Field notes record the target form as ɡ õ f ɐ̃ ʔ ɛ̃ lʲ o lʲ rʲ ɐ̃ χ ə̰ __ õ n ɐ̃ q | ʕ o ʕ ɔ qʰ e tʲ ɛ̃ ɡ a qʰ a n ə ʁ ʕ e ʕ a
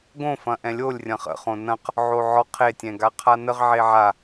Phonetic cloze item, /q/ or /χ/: χ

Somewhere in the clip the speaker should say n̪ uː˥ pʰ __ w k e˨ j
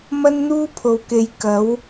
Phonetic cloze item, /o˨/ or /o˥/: o˨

